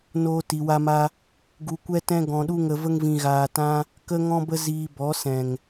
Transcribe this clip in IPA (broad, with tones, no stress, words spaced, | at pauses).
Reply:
noː˦ti˧wa˦ma˦ | ɡu˧kʷɛ˦ tɛ̃˦ɡɔ̃˧ɗu˦ŋə˧ və˦ŋvĩ˧ɣaː˧tã˦ | kə˦ŋɔ̃˦bə˦ ziː˧bɔ˨˦ sɛ̃˨ŋ